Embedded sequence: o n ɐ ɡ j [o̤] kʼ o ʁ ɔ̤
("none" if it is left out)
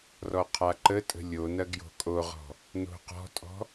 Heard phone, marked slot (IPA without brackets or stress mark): o̤